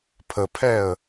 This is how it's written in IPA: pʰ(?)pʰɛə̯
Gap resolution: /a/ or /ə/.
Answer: ə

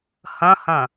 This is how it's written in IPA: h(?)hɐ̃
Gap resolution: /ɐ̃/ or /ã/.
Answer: ɐ̃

